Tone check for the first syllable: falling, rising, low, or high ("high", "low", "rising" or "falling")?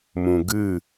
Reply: low